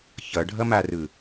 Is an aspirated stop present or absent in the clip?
absent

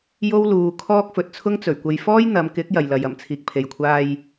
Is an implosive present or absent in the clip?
absent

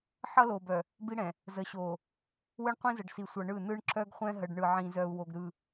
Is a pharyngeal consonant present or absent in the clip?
present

